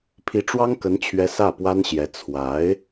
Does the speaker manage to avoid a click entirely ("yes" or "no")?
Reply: yes